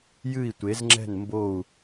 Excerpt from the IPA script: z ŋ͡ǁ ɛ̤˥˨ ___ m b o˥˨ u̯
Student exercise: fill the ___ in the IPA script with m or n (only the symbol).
n